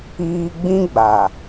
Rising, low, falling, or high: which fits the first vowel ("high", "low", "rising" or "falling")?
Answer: high